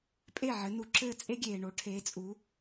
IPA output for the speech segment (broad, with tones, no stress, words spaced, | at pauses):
pʼe˥˨ʕɘ˨˦nu˨ǁɘː˥˨ t͡sʼe˥ɡʲeː˨ɳo˨˦ ʈʰeː˨˦t͡sʼu˨˦